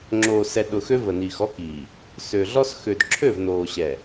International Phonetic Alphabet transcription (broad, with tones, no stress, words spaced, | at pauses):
ŋ͡ǁoː˨ sɛ˨ɗʊ˨xø˦ və˨niː˨xɔ˦kiː˨ | sø˨ɮɔ˦s xø˨dǁʰø˦˨vnoː˨ɕɛ˨